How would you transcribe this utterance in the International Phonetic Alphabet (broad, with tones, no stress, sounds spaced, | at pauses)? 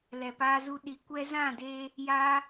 l ɛ˨ p aː˧ z u˧ ɗ i˨˦ kʷ ɛ˦ z ã˦˨ d eː˧ | j aː˦